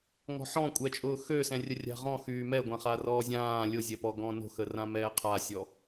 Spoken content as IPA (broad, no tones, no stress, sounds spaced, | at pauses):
ŋ ɔ̤ ħ ɔ̃ kʷʼ ɛ t͡ʃʼ ʊː x ø s ɛ̃ rʲ ə rʲ a̤ ʁ ɔ̃ x yː m ɛ ɡʷ ã χ a r ɔː zʲ ãː lʲ ʊ zʲ ɛ p ɔ ɡ ɔ̃ n o̤ x ə r ã m ɛː qʰ a sʲ ɔ